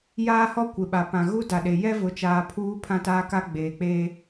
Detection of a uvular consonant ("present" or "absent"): absent